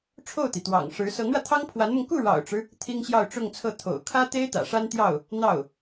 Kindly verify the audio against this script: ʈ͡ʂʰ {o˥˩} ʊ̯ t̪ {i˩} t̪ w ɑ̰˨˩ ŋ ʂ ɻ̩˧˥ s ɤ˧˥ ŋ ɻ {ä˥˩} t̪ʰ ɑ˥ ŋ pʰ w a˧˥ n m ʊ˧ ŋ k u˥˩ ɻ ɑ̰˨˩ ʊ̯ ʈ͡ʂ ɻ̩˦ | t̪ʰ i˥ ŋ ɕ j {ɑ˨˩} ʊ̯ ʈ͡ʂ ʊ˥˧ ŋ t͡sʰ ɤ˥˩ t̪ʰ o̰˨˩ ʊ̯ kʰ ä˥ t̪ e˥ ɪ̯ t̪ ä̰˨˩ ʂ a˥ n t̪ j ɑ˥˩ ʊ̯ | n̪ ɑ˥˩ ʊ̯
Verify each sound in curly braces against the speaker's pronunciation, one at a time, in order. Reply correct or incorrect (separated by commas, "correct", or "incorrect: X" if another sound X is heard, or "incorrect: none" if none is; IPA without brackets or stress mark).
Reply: correct, correct, incorrect: ä˧, incorrect: ɑ˥˧